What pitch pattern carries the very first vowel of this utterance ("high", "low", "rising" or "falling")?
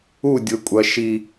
falling